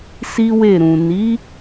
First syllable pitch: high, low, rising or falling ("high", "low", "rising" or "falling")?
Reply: high